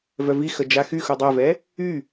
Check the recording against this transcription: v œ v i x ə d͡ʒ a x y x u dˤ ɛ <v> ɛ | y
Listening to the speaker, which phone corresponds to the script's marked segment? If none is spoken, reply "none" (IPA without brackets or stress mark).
v